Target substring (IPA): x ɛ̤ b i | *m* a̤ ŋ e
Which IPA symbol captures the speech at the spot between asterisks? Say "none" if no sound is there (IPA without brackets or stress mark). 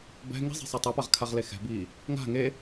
ŋ